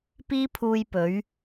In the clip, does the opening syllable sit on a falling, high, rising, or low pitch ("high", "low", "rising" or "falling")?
high